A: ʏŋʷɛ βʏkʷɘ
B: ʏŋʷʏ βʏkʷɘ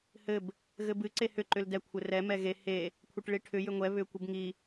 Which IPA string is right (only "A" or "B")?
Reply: A